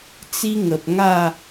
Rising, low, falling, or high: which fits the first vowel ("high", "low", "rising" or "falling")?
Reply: high